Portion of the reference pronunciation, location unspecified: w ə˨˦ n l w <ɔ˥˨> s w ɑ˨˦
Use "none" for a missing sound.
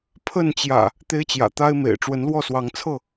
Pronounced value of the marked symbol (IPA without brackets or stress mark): ɔ˥˨